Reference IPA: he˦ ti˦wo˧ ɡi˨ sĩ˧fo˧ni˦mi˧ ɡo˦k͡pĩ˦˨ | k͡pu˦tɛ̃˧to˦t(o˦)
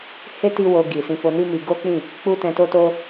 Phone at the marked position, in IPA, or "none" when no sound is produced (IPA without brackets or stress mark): o˦